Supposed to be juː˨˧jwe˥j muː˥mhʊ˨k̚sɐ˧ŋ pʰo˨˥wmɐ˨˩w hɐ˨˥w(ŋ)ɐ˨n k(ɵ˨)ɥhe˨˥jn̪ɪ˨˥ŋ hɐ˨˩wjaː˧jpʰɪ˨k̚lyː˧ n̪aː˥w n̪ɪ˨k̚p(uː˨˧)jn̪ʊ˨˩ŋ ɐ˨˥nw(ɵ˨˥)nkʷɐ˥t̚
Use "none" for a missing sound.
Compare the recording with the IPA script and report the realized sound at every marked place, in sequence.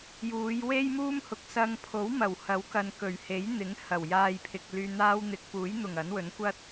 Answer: k, ɵ˨˩, uː˨˥, ɵ˨˥

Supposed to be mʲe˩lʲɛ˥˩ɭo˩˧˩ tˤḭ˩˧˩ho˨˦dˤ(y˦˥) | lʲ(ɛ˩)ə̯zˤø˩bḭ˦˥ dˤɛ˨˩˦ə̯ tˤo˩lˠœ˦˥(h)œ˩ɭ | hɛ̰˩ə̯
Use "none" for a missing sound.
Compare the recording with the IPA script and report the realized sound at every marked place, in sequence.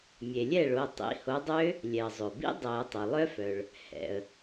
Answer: ø˦˥, ɛ˩, f

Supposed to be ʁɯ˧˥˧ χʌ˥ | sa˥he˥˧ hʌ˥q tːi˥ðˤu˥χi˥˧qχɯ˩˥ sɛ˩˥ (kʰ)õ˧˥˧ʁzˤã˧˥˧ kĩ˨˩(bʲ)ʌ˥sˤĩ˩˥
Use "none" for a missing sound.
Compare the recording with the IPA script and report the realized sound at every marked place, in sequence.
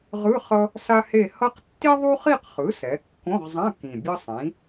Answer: kː, bʲ

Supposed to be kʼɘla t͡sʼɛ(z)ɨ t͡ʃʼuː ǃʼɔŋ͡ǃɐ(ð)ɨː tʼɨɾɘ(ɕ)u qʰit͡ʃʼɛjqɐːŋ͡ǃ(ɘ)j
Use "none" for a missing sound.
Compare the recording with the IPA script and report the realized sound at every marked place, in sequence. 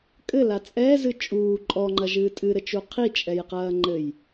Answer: z, ʒ, t͡ʃ, ɘ

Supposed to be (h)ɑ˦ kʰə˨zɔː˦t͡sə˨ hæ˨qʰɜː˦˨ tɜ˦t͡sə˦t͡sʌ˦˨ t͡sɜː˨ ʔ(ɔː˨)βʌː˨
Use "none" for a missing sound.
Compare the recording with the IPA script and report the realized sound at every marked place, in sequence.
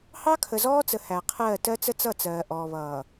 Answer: h, ɔː˨

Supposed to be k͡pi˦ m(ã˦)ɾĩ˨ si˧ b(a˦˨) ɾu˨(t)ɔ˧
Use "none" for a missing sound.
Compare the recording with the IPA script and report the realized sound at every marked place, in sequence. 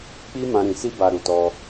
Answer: ã˧, a˨, t

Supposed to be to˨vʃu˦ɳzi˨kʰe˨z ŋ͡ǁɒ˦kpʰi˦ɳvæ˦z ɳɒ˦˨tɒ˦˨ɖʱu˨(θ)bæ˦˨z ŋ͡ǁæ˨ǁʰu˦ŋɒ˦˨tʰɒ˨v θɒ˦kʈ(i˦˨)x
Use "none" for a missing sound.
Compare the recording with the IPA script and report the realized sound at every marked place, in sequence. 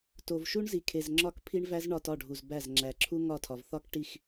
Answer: z, i˦˨

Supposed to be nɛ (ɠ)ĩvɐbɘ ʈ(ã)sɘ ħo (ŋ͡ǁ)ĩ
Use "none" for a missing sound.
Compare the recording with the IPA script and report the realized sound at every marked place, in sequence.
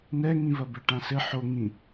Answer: ŋ, ã, ŋ

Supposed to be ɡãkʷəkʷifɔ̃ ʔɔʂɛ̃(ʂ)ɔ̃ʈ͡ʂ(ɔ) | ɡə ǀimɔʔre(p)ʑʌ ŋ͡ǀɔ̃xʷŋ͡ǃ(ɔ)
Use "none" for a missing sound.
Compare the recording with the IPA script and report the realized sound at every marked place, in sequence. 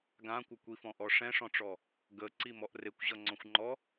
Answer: ʂ, ɔ, kʷ, ɔ

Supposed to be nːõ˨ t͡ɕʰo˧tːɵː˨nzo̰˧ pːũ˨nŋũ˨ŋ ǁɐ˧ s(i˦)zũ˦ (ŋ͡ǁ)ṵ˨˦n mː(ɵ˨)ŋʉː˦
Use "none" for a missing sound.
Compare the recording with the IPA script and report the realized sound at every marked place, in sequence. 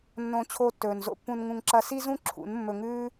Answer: i˦, ǁʰ, ɵ˧

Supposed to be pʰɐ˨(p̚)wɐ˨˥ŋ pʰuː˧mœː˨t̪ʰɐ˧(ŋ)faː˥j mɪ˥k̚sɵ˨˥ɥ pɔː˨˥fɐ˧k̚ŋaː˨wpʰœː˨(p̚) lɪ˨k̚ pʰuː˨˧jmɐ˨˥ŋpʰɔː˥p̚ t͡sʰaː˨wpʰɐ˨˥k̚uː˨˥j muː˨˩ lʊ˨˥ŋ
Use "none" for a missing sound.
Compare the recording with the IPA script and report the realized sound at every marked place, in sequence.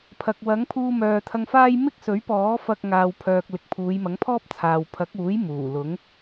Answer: k̚, ŋ, k̚

